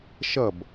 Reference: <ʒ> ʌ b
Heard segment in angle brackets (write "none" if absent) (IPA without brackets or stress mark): ʃ